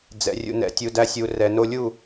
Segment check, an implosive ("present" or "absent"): absent